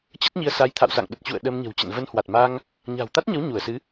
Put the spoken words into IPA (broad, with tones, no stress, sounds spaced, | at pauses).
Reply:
t͡ɕ ə˦˥ t̚ ɲ i˧ ə̯ s a˨˦ j t̪ʰ a̰˧˨ w s a̰˧˨ ŋ ɗ ə˨˩ t̚ t͡ɕ ṵ˧˨ ə̯ ɗ ə˧ m ɲ ə̤˨˩ w t͡ɕ ə̰˧˨ n v ə˧ n h w a˨˩ t̚ m a˧ ŋ | ɲ a̤˨˩ w t̪ a˦˥ t̚ ɲ ə˨˦ w ɲ u˧˩ ə̯ s ɨ˨˦